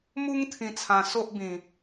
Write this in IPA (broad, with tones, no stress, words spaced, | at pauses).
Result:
mu˦ŋt̪ʰĩ˧t͡sʰã˧ so˦ʔbĩ˧